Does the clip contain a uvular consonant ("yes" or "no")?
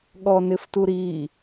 no